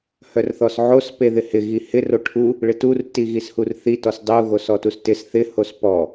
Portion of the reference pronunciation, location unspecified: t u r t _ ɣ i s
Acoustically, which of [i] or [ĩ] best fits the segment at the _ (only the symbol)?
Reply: i